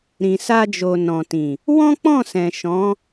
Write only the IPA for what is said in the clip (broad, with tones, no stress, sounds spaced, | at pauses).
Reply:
ɾ ĩ˨ s a˧ d͡ʒ o˨ n ɔ̃˨ t ĩ˨ | w ɔ̃˦ k͡p ɔ̃˦˨ s ɛ̃˨ ʃ ɔ̃˨˦